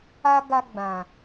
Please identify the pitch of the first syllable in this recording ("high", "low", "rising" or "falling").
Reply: high